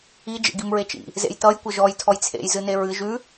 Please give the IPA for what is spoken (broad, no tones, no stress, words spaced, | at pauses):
i d͡ʒḛɡimɹet͡ʃḭ | zḛjtʌj kʷʌʒɔj tʰɔjt͡sʰḛj zɨneɹɨ ʒʉ